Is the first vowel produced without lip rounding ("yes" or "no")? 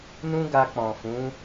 no